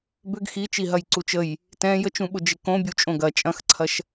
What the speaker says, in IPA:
b ʏ ɡ x i t͡ʃ i ɦ ɐ j ǀ u t͡ʃ ə j | t ɛ̃ j ə t͡ʃ ũ ɓ ʊ d͡ʒ ɪ k õ bʲ u t͡ʃʼ õ ɡ ɐ t͡ʃʼ ɐ̃ x ǀʰ ɐ ʃ

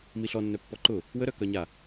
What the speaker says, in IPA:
m i ɬ ɔ nː œ pː ɔ ǃ ʊ | w ə ɾ œ k œ ɲ a

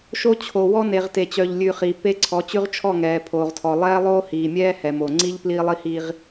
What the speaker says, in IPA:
ʃ o˦ t͡ɕʰ o˨ w ɔ˦ n e˨ ʁ t e˨ t͡ɕ œ˨ ʎ lʲ ʉ˨ χ iː˨ p e˦ ǀʰ ɔ˨˦ t͡ɕ ʉ˦ ʁ t͡ʃʰ ɔ˦˨ ŋ ɛː˨ pʰ oː˨ ʁ tʰ ɔ˨ lˠ ɛː˦ lˠ oː˦ h iː˨ mʲ ɛː˦ h ɛ˨ m o˨ ŋ͡ǀ i˦ ʎ p l iː˦ lˠ i˦ h iː˦ ʁ

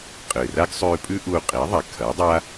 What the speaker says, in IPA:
qʼ ɨː˨ r a˦ ɡ sˤ ʉː˧ pʼ ʉ˦ ʔ u˧ qʼ i˨˦ ðˤ a˨ kʰ ɐ˨˦ dˤ a˦

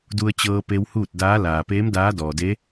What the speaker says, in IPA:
d u˧ ə̯ t͡ɕ ɤː˧ p e˧ w h uː˥˨ t̚ d aː˧˥ l aː˩ p eː˧˥ m d aː˧˥ d ɔː˩ d e˧˥

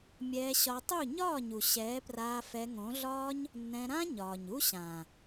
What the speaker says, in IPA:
mʲ ɛː˧ ɕ ɒ˧ tˤ u˦˨ ɲ ɒː˦˨ ɲ u˨ ɕ ɛː˨˦ p r aː˧ f ɛ˧ ŋ õ˨˦ ɮ ɒː˦ ɲ | nː ɛ̃˧ ɾ ã˦ ɲ ɒː˨ ɲ u˦ ɕ ã˨

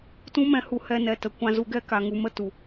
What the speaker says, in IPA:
t ũ˦ m ɛ̃˧ h u˧ h ɛ˧ n ɛ˨ t ə˨ kʷ ã˧ z u˧ ɡ ɛ˦ k a˨ ŋ u˨ m ə˦ t u˨

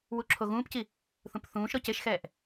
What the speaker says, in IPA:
w u ǁʰ o ɣ ũː p c i | θ ũ p θ ũː ʃ ɾ ɔ c e ʃ x ɛː ʔ

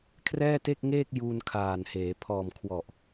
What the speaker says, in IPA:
kʰ r ɛː˥˩ t e˥˩ k̚ ŋ eː˥˩ k̚ j uː˧ n kʰ aː˨˩ n h eː˩˦ pʰ ɔː˨˩ m kʰ w ɔ˨˩ ʔ

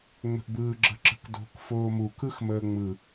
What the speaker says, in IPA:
ŋ͡m ə̤ ʔ b ɯː ɡ͡ǁ ə̤ ǁ ə̤ k d o̤ k f oː m u k ɯ x m əː ŋ͡m ɯ

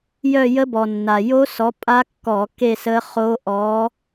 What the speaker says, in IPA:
j œ˥˧ j ə˦˥ b ɔ˩ nː a˩ j o˦˥ s ɔ˨˦ pʼ a˦˥ kː ɔ˧˩˧ k e˥˧ s ə˦˥ χ o˦˥ ʔ ɔ˨˦

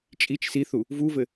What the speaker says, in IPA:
t͡ʃʼ i t͡ʃ s i θ u | v u v ɘ

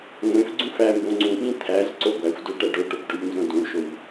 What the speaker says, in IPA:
ŋʷ ẽ f ɡ͡ǀ ũ f æ m b õ ŋ͡ǀ ũ ɓ ĩ t̪ʰ æ z ǀ o ɡʷ æ xʷ d o ʈ æ ɖ o ʈ o p ɖ o ʎ n z õ d ũ ɭ ʃ o ʎ

